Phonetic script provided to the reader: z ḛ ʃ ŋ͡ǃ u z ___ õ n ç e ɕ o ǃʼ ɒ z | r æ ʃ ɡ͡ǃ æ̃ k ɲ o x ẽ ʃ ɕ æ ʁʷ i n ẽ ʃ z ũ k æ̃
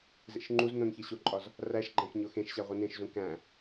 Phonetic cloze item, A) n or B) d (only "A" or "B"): A